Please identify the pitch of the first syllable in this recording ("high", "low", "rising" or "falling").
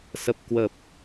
low